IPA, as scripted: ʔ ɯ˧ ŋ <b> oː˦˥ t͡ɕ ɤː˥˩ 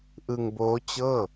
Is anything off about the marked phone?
no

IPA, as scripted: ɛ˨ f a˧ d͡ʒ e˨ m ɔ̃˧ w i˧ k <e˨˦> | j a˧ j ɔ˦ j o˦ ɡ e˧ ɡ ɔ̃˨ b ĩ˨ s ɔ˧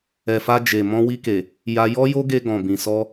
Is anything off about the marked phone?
yes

